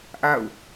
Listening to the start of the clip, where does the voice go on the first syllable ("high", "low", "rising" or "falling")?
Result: falling